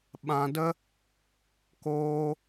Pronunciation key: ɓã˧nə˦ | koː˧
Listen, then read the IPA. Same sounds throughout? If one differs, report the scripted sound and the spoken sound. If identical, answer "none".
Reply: n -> d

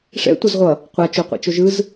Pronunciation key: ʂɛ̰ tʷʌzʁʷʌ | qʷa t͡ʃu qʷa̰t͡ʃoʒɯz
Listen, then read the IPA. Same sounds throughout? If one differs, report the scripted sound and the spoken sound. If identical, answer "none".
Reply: u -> o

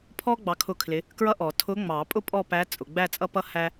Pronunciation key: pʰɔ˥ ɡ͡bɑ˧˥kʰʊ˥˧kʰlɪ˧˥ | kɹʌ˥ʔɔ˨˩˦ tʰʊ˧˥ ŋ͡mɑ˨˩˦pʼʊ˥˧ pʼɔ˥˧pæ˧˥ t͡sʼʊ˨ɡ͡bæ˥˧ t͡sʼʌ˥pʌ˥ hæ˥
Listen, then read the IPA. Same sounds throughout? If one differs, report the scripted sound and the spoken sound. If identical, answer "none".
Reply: none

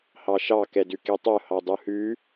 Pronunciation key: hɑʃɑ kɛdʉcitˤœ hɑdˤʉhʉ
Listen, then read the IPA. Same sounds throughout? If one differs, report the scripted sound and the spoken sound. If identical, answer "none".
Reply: c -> k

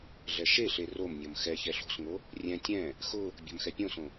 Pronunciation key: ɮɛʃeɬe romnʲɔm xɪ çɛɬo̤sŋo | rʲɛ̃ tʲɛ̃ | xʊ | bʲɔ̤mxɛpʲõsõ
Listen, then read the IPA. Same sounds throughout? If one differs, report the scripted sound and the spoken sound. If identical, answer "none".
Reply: ɪ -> ɛ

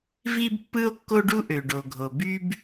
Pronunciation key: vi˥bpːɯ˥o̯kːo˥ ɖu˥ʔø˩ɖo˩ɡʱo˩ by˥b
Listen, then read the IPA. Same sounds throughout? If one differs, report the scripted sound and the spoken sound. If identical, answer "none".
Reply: none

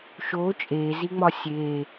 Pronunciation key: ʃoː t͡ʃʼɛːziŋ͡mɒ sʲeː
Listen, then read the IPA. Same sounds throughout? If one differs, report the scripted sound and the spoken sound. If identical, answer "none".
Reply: ɛː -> eː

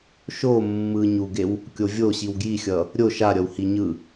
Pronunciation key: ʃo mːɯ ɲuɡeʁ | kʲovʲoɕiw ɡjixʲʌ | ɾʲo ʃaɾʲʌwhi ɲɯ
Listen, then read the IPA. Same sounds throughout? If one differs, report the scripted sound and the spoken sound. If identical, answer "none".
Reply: ʁ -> w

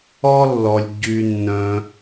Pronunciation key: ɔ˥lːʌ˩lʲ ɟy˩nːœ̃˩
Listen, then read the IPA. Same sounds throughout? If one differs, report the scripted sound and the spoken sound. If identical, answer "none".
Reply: ʌ˩ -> ɔ˩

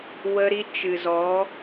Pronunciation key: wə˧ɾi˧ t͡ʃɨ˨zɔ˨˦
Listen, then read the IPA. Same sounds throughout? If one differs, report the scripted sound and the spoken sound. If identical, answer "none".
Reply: none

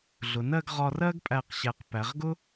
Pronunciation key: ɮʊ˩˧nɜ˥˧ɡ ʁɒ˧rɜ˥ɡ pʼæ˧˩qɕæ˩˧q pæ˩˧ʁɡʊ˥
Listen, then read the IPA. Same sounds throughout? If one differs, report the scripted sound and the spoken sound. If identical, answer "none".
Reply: none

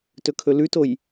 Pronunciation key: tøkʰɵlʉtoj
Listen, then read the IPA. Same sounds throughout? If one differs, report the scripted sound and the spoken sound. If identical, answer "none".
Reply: ø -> ɵ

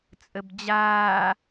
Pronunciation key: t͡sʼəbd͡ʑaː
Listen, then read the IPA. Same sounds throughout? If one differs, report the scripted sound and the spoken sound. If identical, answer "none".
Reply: none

